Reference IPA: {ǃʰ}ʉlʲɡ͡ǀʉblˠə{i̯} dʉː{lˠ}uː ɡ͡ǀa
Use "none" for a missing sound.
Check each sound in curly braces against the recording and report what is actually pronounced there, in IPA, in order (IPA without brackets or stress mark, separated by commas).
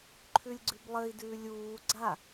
ǃʰ, i̯, lʲ